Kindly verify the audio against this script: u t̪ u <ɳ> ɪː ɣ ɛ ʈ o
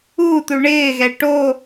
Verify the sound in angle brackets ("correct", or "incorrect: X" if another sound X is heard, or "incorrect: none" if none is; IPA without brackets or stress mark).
correct